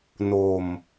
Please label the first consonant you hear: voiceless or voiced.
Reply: voiced